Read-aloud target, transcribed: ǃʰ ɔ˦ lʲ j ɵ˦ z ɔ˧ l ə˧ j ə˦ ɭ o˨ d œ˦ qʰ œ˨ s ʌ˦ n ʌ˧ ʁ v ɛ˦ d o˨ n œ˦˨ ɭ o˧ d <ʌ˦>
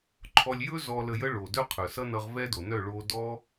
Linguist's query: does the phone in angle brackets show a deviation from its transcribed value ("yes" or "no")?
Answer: yes